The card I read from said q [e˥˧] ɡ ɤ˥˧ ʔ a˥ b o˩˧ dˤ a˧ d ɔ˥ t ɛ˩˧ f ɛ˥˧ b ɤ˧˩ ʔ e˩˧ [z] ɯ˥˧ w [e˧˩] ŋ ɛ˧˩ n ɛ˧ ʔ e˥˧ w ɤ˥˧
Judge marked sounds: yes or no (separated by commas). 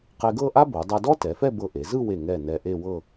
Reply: no, yes, yes